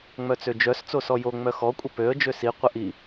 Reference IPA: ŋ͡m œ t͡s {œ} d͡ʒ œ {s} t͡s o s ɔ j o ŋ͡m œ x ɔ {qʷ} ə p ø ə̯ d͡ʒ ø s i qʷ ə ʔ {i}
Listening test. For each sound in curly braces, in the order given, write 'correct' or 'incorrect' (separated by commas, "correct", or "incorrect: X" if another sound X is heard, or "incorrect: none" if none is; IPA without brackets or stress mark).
incorrect: ø, correct, incorrect: kʷʼ, correct